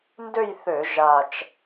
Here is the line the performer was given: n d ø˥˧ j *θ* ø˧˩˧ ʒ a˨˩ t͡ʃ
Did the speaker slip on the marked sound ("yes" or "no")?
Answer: no